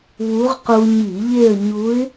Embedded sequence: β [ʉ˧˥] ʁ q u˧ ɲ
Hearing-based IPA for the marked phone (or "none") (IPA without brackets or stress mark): u˧˥